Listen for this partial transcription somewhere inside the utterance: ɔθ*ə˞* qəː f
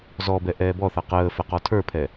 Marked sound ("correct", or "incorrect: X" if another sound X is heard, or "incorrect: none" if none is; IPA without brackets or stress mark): incorrect: ʌ